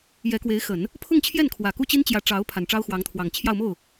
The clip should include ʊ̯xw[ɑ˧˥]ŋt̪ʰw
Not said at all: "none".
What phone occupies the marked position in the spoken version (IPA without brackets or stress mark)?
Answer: ɑ˧˥